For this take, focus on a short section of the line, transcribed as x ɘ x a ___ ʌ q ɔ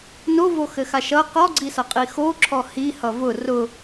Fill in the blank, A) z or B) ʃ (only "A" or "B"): B